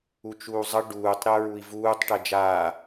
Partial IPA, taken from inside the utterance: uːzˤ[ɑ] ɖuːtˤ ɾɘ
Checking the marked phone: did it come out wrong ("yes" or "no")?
yes